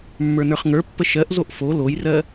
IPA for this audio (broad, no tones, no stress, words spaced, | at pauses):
mːə˞nə˞χŋə˞pːə ʃɜʔzoʔ fo lojrɜ